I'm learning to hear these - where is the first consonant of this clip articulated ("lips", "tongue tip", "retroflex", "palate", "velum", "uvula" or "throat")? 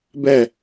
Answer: lips